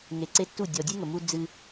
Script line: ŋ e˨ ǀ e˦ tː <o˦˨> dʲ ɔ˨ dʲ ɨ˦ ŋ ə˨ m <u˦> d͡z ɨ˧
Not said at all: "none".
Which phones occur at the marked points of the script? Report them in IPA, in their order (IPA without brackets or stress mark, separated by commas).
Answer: u˦˨, u˧